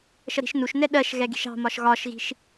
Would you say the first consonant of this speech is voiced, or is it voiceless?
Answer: voiceless